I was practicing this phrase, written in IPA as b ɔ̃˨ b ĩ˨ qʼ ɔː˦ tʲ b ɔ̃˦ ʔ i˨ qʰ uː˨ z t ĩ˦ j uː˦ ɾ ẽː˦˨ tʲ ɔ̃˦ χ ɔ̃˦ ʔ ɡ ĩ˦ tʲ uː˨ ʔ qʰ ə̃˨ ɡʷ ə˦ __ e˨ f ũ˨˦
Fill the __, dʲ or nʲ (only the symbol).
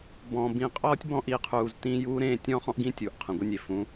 nʲ